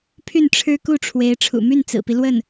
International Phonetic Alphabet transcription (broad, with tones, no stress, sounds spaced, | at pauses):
pʰ y˥˩ n ʈ͡ʂʰ ɻ̩˥ k u˥˩ ʈ͡ʂʰ w e˧˥ ɪ̯ ʈ͡ʂʰ ṵ˨˩ m y˥˩ n t͡s ɹ̩˨˩ p i˦ l w ə˥˩ n